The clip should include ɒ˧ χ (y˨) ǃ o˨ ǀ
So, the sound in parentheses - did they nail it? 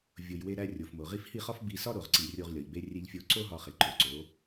no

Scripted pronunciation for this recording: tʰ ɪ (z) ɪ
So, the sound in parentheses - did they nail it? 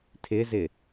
yes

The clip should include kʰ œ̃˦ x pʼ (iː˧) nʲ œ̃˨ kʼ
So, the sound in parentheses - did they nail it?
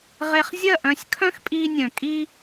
yes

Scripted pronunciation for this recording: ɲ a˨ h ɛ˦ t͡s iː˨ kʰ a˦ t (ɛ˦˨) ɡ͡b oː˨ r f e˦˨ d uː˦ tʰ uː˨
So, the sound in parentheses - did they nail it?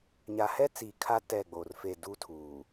yes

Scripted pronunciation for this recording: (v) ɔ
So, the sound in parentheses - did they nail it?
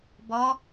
no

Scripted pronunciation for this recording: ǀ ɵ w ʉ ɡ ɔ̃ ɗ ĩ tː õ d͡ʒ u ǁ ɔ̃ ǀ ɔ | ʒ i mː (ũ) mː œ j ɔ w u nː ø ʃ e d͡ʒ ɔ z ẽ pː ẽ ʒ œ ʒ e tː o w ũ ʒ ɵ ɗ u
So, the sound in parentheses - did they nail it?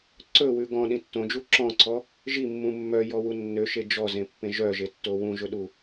yes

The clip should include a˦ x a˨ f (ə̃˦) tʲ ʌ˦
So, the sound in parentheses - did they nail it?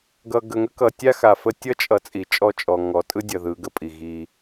no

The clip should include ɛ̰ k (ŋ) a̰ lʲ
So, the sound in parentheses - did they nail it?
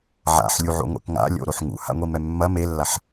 yes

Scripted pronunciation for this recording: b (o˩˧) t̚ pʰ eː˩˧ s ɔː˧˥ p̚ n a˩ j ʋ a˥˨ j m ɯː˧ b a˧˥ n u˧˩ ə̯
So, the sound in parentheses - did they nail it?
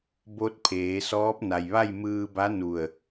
no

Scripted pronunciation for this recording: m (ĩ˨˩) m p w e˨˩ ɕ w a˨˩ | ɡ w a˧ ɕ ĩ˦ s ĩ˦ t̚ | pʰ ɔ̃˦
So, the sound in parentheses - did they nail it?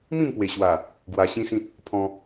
no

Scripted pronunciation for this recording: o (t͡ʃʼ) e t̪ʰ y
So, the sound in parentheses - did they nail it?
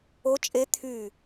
yes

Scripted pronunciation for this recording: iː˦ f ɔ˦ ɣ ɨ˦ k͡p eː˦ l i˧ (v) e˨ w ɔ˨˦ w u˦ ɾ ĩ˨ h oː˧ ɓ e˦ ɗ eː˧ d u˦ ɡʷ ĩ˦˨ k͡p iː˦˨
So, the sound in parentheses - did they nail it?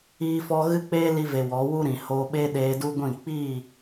yes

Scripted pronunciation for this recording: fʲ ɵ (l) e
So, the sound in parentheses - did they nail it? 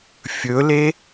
yes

